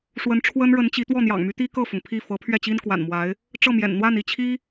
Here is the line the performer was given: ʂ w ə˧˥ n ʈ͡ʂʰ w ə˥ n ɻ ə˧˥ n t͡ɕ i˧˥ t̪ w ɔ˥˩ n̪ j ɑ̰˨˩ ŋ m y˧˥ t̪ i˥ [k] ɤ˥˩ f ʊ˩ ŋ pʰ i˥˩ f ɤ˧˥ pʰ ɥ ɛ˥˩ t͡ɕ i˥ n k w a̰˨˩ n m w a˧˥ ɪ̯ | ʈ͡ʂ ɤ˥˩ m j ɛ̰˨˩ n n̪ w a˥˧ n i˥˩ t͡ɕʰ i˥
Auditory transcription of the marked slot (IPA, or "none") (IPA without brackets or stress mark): k